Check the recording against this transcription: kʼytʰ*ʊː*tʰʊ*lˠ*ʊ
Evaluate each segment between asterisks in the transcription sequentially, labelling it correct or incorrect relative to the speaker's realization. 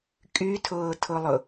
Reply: correct, correct

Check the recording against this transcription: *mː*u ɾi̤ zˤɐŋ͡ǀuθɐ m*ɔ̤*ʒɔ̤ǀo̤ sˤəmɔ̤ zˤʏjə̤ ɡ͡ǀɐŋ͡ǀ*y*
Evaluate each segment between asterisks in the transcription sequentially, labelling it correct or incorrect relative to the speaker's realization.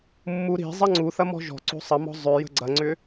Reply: correct, correct, incorrect

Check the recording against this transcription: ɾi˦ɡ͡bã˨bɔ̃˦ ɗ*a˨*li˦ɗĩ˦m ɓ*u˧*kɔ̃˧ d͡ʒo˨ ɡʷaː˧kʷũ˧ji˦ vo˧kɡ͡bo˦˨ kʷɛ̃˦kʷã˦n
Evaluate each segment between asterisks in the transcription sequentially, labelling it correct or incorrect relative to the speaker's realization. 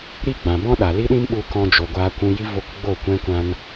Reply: correct, correct

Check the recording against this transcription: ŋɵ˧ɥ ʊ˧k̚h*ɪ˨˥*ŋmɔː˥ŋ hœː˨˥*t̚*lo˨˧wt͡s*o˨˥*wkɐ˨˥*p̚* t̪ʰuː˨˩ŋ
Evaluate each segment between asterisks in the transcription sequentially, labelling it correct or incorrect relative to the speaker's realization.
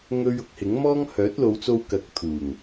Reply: correct, correct, incorrect, incorrect

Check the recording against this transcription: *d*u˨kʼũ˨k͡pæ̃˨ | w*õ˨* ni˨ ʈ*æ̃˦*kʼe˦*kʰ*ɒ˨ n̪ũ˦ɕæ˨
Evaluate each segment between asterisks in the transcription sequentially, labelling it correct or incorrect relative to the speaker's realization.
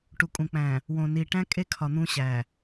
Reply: incorrect, correct, correct, correct

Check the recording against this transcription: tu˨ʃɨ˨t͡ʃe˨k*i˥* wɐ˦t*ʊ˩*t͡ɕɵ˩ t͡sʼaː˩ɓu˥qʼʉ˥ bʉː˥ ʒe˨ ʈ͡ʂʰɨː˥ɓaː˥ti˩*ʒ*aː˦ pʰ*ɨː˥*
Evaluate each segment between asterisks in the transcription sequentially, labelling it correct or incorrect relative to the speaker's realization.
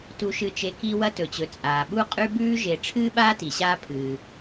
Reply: incorrect, incorrect, incorrect, incorrect

